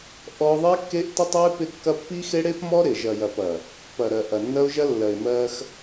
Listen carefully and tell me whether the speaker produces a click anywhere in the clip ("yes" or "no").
no